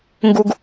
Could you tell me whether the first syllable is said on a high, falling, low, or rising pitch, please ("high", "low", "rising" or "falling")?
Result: low